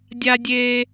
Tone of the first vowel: high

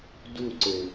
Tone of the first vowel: falling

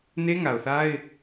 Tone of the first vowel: high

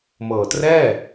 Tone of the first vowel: low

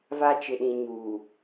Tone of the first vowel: high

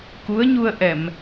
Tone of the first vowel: rising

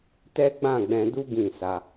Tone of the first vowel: high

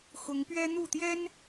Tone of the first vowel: rising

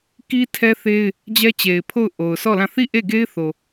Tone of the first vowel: high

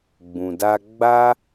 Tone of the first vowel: low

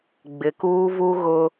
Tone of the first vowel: low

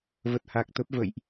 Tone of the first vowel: low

